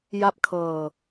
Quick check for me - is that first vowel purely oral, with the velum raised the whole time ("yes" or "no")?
yes